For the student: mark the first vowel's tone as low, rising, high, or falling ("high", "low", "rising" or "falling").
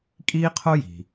high